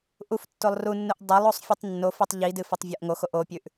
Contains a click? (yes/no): no